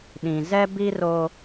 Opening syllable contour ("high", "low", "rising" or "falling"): low